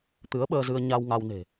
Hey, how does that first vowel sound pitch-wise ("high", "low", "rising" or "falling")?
rising